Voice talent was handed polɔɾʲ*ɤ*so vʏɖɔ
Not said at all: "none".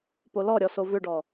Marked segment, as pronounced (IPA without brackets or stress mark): ɔ